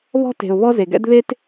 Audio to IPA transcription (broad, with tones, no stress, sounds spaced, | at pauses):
β ɔ̤˥ t e̤˨ ʊ̯ β ɔ˥ z e˩ ɡ ɛ̰˥ d β e˥ t